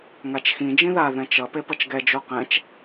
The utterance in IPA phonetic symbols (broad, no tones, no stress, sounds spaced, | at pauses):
ŋ a t͡ʃ x ĩ d͡ʒ ĩ ð a ð ɛ̃ t͡ʃ ʌ p e p ʌ t͡ʃ ɡ ɛ d͡ʒ o q ɛ̃ t͡ʃ